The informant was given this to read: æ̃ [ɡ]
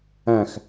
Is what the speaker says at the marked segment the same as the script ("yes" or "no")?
no